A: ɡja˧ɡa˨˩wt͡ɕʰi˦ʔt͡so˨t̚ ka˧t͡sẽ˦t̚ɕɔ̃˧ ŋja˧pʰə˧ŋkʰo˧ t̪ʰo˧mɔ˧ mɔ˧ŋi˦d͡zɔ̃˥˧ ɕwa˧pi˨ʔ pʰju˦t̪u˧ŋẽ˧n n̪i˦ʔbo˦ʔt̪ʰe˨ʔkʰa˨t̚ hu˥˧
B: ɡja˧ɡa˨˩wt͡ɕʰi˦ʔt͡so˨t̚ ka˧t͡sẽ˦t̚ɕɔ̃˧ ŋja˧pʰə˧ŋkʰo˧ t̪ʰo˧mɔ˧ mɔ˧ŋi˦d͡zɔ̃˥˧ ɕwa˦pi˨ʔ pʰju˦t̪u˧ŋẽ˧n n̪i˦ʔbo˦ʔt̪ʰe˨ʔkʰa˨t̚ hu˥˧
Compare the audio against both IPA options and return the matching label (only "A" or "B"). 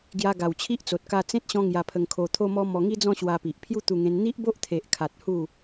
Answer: A